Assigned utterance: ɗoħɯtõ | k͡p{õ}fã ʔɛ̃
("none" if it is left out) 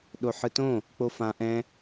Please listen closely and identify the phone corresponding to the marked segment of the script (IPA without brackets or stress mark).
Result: o